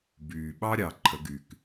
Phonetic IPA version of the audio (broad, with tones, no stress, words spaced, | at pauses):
byː˩ɓɑ˥ɾʲɑ˩ ǃʰə˩˧ɡy˩k